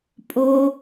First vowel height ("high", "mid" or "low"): mid